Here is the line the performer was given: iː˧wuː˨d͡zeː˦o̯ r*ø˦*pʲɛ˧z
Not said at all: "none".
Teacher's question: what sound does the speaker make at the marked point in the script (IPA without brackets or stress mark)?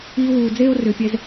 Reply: ø˨